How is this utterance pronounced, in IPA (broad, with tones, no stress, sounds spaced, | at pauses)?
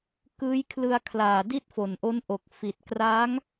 k ɯː˦˥ j kʰ l ɯ˧ a̯ kʰ l aː˨˩ d i˥˩ t̚ f o˨˩ n ʔ o˦˥ n ʔ o˨˩ k̚ f i˨˩ t̚ k r aː˦˥ ŋ